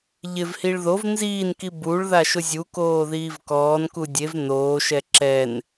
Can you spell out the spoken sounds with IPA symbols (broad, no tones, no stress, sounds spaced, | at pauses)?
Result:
ʎ ɪ v h i ɭ ð o v n z iː n k i b u ɭ ð a ʃ ʊ zʲ u k oː ð iː v k ɔː n k u dʲ e v n oː ʃ ɛ ǁ ɛ n